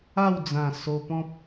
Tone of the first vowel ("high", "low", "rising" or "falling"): falling